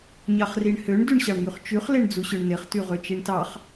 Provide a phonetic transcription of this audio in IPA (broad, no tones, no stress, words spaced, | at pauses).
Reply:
ɲɑχriɳhøɳ dyɳɕɑɳŋyχt͡ʃyχ leɳd͡zuɕøɳneχ tyʁøt͡ʃiɳtɑχ